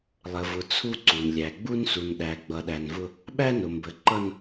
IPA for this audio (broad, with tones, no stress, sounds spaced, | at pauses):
lˠ ə˨ v ʊ˨ t͡sʰ u˦ ǀ u˨ n lʲ æ˨ ɡ͡b u˦ n s u˨ n ɗ æ˨ ɡ͡b ʌ˨ ɗ æ˨ n v ʊ˦ | ɓ æ˦ n ʊ˨ m b ə˨ ǃ ʌ˦ n